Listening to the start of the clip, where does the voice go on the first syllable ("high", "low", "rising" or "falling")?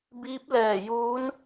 rising